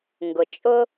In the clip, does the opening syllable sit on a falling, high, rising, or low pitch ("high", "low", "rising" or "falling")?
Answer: low